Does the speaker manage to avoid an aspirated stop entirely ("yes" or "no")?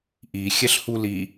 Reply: yes